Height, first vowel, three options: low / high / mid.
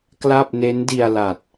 low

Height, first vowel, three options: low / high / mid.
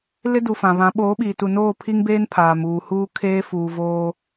high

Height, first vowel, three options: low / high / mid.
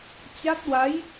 low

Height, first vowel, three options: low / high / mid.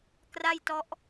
low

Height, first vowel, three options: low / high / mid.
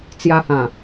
low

